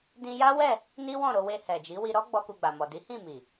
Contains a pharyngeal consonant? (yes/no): no